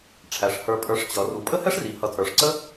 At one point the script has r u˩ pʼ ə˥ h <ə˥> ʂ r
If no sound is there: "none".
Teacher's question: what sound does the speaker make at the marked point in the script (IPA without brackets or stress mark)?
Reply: ɛ˥